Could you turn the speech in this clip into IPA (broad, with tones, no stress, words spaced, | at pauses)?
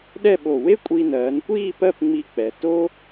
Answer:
ɗɛ˥˧ɓo˧˩ we˥kʷʼi˧nɜː˩˧nkʷiː˥˧ pɜ˥˧pŋ͡mi˧k͡pɛ˩˧ to˥